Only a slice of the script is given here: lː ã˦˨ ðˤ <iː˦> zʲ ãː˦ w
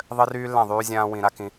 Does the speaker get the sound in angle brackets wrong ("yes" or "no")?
yes